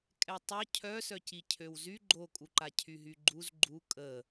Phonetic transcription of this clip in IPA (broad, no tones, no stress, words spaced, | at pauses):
kʼɛtˤœ cʰœsœci cʰøwzy ɡ͡ǃokʼuǃa cʰyɦyɡ͡ǃuz ɡ͡ǃu kʼə